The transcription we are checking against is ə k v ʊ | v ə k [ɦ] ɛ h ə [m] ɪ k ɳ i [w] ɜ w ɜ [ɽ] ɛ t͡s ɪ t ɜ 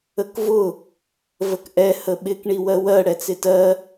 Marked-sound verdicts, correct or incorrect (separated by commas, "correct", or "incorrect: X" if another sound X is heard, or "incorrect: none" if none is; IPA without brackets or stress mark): incorrect: ʔ, incorrect: ɓ, correct, correct